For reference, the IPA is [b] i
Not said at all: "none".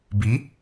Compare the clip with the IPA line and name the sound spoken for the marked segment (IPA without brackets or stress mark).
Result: b